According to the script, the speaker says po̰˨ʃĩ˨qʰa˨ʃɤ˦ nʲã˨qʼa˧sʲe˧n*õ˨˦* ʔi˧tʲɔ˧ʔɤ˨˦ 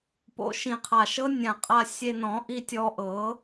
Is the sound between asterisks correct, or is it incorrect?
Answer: incorrect